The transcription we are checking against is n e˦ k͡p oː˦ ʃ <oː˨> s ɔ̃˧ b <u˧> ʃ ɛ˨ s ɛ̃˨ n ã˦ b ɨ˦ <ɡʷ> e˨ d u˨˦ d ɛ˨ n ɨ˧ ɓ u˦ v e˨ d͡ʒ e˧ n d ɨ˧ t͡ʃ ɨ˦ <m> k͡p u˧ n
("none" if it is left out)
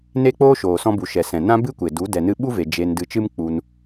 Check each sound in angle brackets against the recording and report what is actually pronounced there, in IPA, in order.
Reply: oː˨, u˨, kʷ, m

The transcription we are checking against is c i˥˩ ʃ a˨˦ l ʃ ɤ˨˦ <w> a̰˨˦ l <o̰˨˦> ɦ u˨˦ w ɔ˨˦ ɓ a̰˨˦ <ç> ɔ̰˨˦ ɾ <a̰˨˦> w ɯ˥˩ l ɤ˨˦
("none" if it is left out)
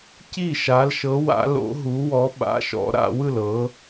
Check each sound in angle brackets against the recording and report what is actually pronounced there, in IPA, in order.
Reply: w, o̰˨˦, ʃ, a̰˨˦

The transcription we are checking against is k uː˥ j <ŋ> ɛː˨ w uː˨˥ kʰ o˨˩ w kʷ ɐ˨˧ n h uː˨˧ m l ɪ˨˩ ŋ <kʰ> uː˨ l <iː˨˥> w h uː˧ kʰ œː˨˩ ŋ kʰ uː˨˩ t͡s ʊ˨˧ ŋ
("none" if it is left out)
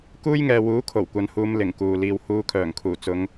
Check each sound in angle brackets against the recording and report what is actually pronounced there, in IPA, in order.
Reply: ŋ, k, iː˧

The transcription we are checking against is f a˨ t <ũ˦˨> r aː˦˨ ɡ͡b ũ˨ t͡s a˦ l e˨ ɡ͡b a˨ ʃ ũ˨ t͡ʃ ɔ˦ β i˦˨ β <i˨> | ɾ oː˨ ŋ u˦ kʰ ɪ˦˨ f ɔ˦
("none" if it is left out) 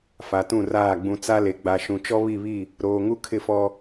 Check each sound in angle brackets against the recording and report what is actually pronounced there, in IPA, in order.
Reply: ũ˦˨, i˦˨

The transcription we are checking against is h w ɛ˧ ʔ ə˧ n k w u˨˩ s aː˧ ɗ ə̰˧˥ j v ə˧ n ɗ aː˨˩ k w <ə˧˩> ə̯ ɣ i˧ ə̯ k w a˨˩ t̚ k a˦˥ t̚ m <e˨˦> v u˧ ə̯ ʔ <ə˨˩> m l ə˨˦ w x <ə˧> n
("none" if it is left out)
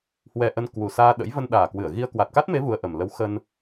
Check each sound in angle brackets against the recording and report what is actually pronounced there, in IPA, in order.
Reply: ɨ˧˩, e˨˦, ə˨˩, ə˧

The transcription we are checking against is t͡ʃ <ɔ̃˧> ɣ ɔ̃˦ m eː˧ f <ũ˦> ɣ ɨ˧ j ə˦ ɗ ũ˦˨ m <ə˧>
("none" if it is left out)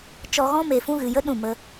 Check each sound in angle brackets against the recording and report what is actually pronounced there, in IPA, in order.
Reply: ɔ˧, ũ˦, ə˧

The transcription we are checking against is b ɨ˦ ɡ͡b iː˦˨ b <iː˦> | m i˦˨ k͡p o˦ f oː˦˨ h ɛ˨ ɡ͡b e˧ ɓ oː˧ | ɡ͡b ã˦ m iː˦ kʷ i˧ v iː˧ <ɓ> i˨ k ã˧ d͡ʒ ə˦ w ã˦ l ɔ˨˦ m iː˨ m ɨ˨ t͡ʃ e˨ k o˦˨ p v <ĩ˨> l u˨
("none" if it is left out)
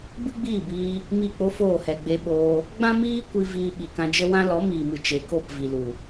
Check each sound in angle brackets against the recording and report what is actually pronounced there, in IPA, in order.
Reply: iː˧, ɓ, i˨

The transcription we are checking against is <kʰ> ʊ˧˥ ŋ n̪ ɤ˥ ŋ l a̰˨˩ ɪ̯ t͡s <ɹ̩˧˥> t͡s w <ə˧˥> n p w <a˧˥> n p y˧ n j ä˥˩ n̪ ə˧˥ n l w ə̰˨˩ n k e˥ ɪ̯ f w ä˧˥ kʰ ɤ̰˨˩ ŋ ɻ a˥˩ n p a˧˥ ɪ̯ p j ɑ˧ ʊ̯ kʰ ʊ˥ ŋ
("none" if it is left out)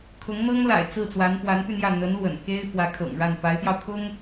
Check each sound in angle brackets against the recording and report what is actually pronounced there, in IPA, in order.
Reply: kʰ, ɹ̩˥˩, a˧˥, a˧˥

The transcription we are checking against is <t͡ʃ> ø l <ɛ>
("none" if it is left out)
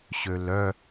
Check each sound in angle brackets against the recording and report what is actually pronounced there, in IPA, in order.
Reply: ɕ, œ

